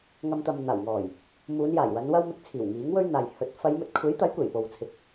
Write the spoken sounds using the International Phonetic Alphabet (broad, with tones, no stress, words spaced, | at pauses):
ŋɐ˧m t̪ɐ˨mn̪aː˨˩w ŋɔː˨˩j | muː˨˧njaː˨˩jwɐ˨˧n wɐ˥w mɪ˧k̚ t͡sʰiː˨˩wŋiː˨˥ŋ wɵ˥ɥn̪aː˨j hɵ˨˥t̚ fɐ˨˧jmɵ˨t̚kʷʰe˨˥jt̪ɐ˨˥j kʷe˨˩jpo˨w t͡sʰɪ˨k̚